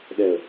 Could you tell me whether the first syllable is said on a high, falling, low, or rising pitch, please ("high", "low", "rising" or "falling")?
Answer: low